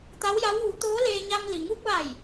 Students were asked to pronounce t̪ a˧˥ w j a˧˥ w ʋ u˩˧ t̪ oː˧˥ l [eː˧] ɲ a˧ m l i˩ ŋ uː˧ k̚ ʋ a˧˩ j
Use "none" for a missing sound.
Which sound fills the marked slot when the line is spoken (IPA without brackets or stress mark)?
eː˧